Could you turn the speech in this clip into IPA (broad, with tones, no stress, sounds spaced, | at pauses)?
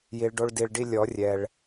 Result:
j i˨ ɭ ɖ o˧ ɭ d i˨ ɭ ɖ i˧ lʲ ɔ˨˦ rʲ ɛ˨ ɭ